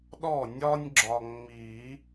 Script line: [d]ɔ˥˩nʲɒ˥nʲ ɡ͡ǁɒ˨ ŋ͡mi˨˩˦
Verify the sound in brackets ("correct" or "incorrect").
incorrect